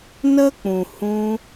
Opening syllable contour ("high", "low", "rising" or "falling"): high